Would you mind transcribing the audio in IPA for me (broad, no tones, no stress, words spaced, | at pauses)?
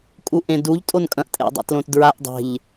kʼuʔẽduʎ tʼonkʼɐ̃ʔ tʼḛdˤa̰tlõtdɹaʔ dˤe̤ʎ